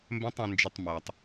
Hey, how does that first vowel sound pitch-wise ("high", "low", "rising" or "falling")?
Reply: high